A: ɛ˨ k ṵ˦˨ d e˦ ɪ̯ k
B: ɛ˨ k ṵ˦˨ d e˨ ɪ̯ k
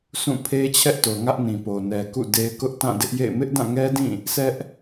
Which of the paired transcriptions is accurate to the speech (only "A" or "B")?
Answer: A